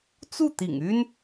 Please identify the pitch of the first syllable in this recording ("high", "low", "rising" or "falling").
falling